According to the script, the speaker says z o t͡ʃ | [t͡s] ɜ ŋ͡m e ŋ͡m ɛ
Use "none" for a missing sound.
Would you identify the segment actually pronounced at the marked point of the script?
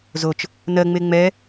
n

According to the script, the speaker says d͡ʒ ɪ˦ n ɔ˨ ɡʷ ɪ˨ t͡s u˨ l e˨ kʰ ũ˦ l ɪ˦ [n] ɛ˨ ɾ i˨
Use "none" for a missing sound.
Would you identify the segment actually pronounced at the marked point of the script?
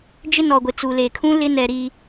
n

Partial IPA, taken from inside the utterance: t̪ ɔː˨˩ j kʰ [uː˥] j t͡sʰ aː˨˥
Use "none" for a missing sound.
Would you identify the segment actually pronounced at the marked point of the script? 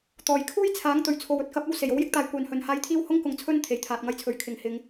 uː˥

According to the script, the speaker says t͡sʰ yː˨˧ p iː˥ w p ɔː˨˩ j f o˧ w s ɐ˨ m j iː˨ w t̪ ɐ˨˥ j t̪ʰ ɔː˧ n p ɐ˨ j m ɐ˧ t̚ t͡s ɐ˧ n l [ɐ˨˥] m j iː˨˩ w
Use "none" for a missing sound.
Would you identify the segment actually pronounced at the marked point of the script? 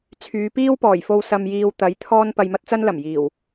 ɐ˨˩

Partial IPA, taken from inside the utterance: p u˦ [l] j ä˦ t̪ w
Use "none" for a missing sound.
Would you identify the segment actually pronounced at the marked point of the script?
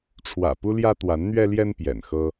l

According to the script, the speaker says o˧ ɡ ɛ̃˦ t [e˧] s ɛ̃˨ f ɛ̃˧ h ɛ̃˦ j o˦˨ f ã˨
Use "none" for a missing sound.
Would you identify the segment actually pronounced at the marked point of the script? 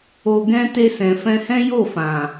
e˧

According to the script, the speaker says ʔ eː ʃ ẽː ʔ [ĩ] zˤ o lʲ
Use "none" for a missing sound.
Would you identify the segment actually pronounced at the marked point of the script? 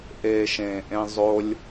ẽ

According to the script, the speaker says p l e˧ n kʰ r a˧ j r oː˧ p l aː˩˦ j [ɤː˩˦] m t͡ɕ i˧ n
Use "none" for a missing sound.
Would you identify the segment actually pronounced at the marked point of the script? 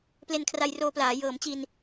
ɤː˩˦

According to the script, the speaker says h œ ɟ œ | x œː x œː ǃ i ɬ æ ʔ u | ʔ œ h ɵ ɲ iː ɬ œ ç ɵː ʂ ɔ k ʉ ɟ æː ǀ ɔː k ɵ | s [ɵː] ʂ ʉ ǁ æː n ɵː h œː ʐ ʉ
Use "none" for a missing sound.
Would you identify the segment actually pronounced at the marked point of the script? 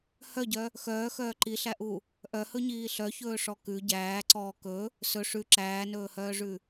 ɵ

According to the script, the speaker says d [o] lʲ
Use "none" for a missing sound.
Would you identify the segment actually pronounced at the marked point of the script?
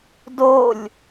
o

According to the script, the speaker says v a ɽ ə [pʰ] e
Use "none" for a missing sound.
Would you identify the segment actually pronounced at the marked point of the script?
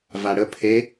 pʰ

